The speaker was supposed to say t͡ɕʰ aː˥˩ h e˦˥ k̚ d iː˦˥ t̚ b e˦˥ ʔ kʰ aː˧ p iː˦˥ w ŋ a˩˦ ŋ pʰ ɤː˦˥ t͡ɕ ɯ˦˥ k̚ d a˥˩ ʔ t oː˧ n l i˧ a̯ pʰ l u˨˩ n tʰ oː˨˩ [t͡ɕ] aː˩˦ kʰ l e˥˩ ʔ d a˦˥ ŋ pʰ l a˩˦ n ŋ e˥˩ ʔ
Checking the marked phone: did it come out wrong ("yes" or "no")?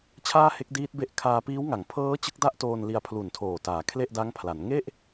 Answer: yes